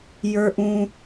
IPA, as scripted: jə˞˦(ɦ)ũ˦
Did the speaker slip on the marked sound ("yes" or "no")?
yes